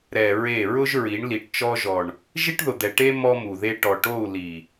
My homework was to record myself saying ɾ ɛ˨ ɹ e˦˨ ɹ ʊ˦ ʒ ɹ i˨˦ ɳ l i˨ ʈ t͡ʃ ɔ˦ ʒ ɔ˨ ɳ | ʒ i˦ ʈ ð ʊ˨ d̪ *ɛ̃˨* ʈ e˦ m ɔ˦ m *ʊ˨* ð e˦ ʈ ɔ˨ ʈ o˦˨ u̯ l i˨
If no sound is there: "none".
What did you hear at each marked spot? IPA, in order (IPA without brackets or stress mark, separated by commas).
ɛ˨, u˨